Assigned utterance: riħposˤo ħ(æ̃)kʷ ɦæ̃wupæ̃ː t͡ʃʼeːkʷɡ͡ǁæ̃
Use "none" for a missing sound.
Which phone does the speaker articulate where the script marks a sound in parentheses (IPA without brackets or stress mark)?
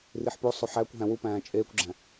æ